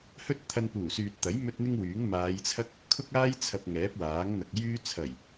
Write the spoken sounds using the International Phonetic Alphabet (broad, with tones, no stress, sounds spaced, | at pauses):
h ɵ˥ t̚ t̪ʰ ɐ˧ n p uː˨˩ s yː˨ t̚ t̪ ɐ˨˥ j m ɵ˥ t̚ n̪ ɪ˥ ŋ w yː˨˥ ŋ m aː˨˧ j t͡sʰ ɐ˥ k̚ | kʰ ʊ˥ k̚ aː˥ j t͡sʰ ɐ˧ p̚ ŋ ɛː˨˥ p̚ w aː˨˥ ŋ n̪ ɐ˨ k̚ j yː˥ t͡sʰ ɐ˨˩ j